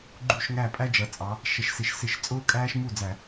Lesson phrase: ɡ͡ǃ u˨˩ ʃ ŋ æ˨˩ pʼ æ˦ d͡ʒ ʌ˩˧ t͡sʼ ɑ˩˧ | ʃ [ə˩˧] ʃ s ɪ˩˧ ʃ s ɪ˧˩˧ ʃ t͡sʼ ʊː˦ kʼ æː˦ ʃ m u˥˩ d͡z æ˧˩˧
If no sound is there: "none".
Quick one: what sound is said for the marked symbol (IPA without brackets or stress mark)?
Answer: ə˩˧